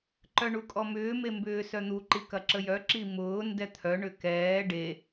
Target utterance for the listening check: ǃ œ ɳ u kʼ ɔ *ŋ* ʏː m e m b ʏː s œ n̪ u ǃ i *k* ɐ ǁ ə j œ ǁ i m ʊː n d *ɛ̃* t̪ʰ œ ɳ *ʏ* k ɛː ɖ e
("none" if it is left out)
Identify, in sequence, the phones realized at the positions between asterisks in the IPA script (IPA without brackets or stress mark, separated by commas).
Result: m, k, ɛ, ʏ